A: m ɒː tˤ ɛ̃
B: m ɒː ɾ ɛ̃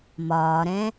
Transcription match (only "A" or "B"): B